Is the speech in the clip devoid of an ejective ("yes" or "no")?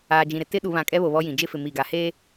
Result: no